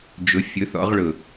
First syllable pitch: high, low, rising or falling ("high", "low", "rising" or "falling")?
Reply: rising